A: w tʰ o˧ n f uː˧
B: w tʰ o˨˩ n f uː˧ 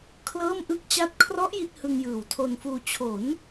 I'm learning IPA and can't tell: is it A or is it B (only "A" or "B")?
A